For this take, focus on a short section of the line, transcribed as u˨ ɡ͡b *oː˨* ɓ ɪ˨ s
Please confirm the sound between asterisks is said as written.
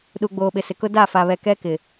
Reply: yes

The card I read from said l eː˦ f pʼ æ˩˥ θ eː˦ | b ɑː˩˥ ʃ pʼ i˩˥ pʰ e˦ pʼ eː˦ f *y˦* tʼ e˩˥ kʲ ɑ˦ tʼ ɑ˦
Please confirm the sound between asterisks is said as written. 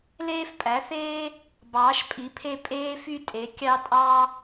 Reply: yes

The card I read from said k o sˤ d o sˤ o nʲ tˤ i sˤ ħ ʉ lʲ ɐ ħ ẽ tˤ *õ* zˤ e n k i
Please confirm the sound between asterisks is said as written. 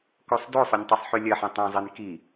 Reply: yes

